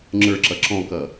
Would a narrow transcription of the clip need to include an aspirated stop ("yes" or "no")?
no